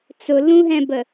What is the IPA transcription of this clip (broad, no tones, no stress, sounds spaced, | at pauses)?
t͡s ʊ l ũ ɦ ɛ̃ b ə